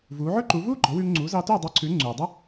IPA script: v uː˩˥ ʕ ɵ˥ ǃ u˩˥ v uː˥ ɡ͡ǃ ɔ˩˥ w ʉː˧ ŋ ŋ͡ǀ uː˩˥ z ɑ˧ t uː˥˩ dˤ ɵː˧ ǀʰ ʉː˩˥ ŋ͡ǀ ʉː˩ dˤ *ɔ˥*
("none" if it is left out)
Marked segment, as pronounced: ɵ˥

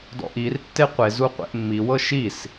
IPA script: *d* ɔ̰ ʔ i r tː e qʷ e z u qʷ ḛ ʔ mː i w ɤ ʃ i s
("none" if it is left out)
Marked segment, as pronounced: d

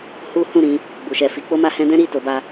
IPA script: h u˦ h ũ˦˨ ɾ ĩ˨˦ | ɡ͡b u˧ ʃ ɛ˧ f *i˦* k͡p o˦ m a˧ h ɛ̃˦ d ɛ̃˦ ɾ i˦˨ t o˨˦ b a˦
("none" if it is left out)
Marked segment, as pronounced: i˦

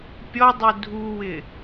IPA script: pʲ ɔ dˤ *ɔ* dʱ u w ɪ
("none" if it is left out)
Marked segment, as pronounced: o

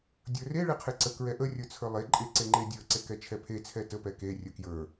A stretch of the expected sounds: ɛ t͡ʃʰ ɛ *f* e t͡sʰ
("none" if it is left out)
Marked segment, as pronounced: pʰ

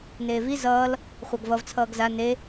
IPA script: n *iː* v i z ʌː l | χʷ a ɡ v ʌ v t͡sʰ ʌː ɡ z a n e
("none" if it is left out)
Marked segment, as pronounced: eː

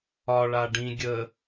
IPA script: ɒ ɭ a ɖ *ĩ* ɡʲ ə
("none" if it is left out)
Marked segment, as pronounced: ĩ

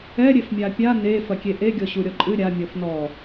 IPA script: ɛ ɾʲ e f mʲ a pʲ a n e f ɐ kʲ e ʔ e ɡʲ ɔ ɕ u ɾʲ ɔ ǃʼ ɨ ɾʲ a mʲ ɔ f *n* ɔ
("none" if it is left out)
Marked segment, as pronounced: n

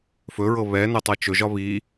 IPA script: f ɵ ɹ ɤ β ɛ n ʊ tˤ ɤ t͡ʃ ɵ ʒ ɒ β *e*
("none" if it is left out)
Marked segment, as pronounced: i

